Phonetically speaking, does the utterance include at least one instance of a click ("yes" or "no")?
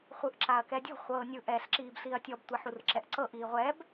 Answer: yes